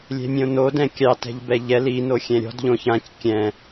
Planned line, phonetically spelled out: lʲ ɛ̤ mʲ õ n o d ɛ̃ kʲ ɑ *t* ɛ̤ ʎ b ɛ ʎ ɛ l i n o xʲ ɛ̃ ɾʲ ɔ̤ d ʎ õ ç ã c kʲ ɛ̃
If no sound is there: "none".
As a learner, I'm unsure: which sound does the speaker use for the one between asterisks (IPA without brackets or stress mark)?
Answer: t